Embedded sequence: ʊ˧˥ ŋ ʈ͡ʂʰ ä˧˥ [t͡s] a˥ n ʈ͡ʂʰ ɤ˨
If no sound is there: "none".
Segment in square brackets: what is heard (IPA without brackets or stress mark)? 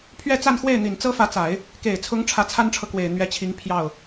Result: t͡sʰ